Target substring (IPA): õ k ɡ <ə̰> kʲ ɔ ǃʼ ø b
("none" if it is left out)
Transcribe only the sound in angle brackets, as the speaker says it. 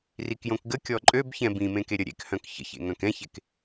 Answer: ə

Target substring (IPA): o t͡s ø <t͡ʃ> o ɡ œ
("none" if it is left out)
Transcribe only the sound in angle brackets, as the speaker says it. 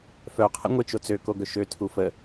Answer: k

